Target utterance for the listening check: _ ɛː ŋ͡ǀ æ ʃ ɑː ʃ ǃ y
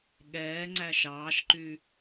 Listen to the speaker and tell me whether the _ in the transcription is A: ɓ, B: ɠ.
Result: B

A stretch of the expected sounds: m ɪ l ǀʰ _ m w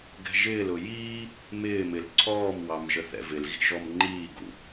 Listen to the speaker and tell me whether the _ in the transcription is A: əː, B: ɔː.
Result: B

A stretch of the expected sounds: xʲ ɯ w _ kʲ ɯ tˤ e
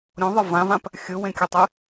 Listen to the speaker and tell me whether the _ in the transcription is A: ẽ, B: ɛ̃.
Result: A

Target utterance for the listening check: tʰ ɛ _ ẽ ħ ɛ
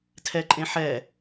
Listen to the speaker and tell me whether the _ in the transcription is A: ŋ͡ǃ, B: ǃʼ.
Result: B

